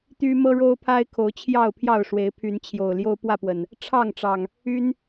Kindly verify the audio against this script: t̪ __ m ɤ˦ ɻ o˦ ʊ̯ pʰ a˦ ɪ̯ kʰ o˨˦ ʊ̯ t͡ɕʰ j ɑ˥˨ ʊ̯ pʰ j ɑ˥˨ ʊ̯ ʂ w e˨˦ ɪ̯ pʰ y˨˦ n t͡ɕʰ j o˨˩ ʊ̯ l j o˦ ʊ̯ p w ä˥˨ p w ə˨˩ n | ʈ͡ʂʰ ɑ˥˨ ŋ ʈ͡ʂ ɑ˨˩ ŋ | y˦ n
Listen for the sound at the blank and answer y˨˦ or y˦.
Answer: y˦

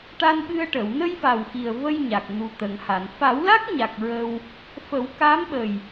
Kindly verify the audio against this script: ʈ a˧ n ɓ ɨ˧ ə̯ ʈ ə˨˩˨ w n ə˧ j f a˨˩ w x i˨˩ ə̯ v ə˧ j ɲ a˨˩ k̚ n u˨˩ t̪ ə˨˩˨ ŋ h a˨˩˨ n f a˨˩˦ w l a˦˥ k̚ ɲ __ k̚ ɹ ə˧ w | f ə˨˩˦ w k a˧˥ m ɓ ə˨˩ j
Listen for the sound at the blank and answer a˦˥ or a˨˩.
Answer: a˨˩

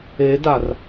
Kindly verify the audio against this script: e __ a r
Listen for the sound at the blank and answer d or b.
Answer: d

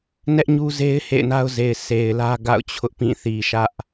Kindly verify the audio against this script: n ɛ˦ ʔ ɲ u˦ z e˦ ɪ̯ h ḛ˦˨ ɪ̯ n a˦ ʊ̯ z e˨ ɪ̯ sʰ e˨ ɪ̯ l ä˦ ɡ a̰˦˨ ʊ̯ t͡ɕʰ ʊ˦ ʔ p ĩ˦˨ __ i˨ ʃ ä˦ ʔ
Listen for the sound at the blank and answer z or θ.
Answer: θ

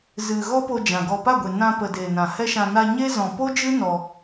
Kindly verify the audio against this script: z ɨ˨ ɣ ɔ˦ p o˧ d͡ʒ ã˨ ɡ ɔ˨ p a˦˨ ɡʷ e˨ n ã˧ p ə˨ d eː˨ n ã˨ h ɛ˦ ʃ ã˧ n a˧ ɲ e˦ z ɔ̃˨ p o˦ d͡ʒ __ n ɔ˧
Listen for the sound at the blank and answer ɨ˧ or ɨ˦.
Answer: ɨ˦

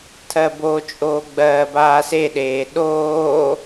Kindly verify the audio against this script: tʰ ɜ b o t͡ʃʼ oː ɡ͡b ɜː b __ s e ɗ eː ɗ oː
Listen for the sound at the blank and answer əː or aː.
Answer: aː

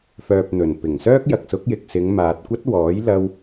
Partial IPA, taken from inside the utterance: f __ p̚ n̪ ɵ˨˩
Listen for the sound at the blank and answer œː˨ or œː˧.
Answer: œː˨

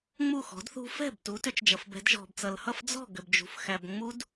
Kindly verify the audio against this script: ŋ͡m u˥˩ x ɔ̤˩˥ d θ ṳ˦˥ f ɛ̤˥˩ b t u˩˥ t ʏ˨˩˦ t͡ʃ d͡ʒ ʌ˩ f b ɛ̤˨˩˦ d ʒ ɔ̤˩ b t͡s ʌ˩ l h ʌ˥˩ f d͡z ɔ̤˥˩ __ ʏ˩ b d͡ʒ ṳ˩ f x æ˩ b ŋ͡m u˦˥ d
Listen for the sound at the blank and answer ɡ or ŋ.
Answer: ɡ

